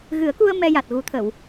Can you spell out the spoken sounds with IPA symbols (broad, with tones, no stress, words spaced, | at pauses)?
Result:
ɣɨ˨˩˦ə̯ku˧ə̯ mɛ˧ja˨˩t̚ɣu˨˩˦t̪ʰə˨˩˨w